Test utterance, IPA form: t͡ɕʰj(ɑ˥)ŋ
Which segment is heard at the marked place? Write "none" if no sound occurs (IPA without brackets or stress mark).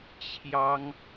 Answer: ɑ˥